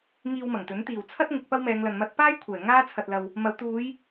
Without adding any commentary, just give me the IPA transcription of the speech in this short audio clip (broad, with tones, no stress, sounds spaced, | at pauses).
ŋ iː˧ w m ɐ˨˩ ŋ t̪ ɵ˨˥ n t̪ iː˨˩ w t͡sʰ ɐ˥ t̚ ŋ ɪ˨˥ k̚ p ɐ˥ w m ɛː˨˧ ŋ l ɐ˨ n m ɐ˧ t̚ p aː˥ j kʷʰ ɛː˨˩ ŋ aː˥ t͡sʰ ɐ˨ t̚ l ɐ˨ w | m ɐ˨˧ w t̪ uː˨˧ j